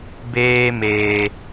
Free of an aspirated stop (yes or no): yes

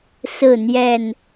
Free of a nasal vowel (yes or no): yes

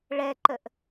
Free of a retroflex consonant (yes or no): no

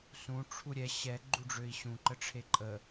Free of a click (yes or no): no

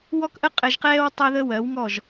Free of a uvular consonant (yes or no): no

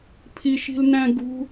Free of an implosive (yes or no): yes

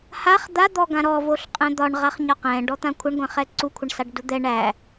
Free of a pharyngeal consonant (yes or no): yes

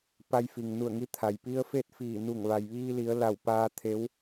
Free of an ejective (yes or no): yes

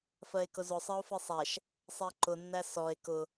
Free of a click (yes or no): no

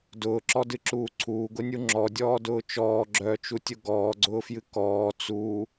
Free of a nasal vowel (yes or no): yes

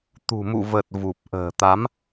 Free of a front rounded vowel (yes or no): yes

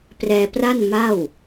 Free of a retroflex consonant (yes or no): yes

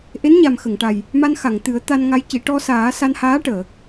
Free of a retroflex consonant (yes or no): no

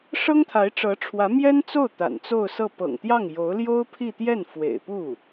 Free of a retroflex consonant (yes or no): no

